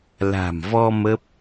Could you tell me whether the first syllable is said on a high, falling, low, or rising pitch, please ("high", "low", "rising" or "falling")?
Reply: low